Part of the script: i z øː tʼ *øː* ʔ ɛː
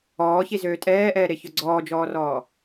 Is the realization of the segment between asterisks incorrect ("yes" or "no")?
yes